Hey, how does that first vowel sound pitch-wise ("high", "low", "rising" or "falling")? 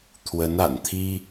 rising